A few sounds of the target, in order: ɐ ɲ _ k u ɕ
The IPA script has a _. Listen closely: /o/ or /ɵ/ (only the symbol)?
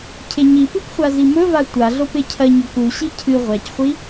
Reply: ɵ